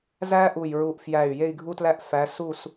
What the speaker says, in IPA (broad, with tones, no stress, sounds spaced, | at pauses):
z æ˥ ʔ u˧˩ j ɹ u˧˩ ʔ f j æ˧˩ y̯ j e˥˧ i̯ ɡʱ u˥ t l æ˥ ʔ f æ˨˦ s u˥˧ s